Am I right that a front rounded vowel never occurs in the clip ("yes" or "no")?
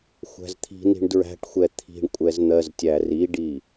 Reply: yes